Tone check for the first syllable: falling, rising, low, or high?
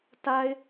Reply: low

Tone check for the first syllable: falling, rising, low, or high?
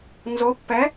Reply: rising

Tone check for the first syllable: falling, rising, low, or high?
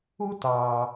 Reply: high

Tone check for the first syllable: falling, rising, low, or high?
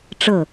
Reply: falling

